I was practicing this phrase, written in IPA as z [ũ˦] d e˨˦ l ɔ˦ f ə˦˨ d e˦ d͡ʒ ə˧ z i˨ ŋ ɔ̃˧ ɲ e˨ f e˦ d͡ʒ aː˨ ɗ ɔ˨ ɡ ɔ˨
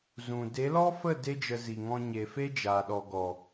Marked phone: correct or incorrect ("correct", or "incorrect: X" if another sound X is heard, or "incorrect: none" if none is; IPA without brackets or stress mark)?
incorrect: ũ˨